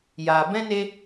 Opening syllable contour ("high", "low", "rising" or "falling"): low